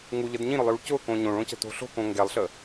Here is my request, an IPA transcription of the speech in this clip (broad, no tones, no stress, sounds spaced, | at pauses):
ŋ u ʎ ə d ɲ ĩ ɾ ʊ lˠ j u ɭ c ʊ k õ ɲ õ ɭ õ c ə̤ t o̤ ɬ o̤ k õ ŋ ɡ ɛ lˠ ɬ ə